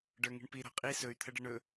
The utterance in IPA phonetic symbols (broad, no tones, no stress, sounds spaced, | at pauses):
ɖ ə˞ ŋ i̤ ɳ p i ɾ ɔ̤ qʼ i s ɵ y̯ t̪ʰ ə ɖ ə ɳ ɵ